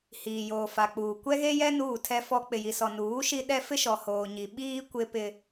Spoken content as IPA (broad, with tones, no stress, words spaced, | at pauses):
hiː˨joː˨fa˨k͡puː˨ kʷɛ˦ɣe˦jɛ˦ nuː˦˨tʰɛ˦fɔ˦ k͡pɪ˨ji˨sɔ˨nuː˨˦ ʃi˦ɗɛ˦ fɪ˦ʃɔ˨ hoː˨ɲi˨ ɓiː˦ kʷɪ˦pɪ˦